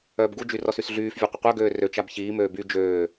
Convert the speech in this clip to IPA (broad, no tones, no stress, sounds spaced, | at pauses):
œː b ɡ u d͡ʒ y r ɔ s y s ɮ yː f vʲ e qʷ ə qʷ œ ɡ øː r ø t͡ʃ a b ç iː m øː b y d͡ʒ øː